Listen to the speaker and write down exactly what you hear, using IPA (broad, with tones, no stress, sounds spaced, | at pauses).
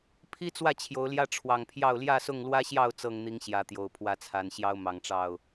pʰ i˦ t͡s w ä˥˨ t͡ɕʰ j o˨˦ ʊ̯ l j ä˦ ʈ͡ʂʰ w ɑ˨˩ ŋ pʰ j ɑ˥˨ ʊ̯ l j ä˥˨ s ʊ˥˨ ŋ l w ä˦ ɕ j ɑ˥˨ ʊ̯ t͡s ɤ˥˨ ŋ n̪ i˨˦ ŋ ɕ j ä˨˦ t̪ j o˨˩ ʊ̯ pʰ w ä˨˦ t͡sʰ a˨˩ n ɕ j ɑ˦ ʊ̯ m ɑ˨˩ ŋ ʈ͡ʂ ɑ˥˨ ʊ̯